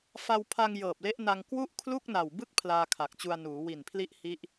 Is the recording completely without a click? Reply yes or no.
yes